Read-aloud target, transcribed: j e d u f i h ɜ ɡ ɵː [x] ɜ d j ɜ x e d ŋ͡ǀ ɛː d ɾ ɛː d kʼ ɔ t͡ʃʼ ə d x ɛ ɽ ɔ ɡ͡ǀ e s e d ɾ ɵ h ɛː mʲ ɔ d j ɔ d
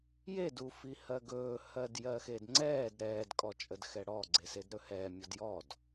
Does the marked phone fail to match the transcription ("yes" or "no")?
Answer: yes